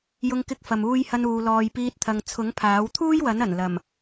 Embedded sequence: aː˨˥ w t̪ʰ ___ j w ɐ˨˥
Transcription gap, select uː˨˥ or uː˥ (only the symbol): uː˥